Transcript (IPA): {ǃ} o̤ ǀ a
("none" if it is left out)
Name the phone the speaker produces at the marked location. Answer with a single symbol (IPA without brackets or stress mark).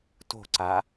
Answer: t